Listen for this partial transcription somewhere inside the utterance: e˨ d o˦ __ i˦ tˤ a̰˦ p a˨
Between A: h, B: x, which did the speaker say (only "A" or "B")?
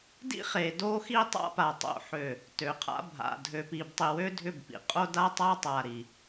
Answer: B